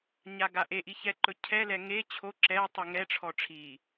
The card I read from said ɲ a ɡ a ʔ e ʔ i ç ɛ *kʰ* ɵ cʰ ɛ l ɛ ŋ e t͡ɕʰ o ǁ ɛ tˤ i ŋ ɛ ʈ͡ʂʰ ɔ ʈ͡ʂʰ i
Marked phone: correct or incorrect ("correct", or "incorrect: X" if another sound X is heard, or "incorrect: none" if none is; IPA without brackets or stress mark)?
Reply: incorrect: ǃ